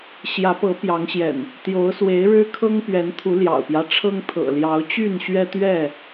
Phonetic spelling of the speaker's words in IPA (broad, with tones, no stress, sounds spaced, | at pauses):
ɕ j ä˨˦ p ɤ˨˦ p j ɑ˨˦ ŋ ɕ j ɛ̰˨˩ n | t̪ j o˨˦ ʊ̯ s w e˨˦ ɪ̯ ɻ ɻ̩˦ kʰ ɤ˦ ŋ p ɥ ɛ˨˦ n t̪ʰ u˨˦ l j ɑ̰˨˩ ʊ̯ p j ä˦ ʈ͡ʂʰ ɤ˦ ŋ t̪ʰ ɤ̰˨˩ l j ɑ˨˦ ʊ̯ t͡ɕ y˥˨ n ɕ ɥ ɛ˦ t̪ ɥ ɛ˥˨